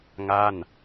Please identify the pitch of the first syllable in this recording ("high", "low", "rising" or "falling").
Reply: falling